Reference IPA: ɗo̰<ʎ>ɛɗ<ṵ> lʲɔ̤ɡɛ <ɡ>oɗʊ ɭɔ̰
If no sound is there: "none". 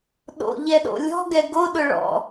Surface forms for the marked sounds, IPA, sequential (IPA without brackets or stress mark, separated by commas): ʎ, o̰, ɡ